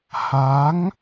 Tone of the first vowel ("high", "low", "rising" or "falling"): rising